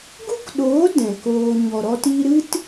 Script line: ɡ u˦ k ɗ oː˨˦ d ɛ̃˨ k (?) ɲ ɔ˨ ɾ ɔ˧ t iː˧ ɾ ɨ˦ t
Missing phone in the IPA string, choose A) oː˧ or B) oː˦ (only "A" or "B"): A